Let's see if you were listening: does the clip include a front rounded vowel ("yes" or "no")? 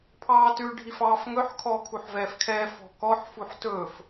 no